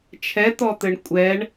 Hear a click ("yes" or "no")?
no